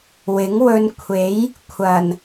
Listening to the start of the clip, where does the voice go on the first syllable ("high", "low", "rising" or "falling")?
rising